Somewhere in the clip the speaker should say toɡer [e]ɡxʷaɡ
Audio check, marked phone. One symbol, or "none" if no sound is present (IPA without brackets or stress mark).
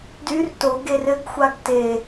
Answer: ɘ